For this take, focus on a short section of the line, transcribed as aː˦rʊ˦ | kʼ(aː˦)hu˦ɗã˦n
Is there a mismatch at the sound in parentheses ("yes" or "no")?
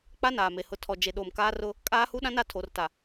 no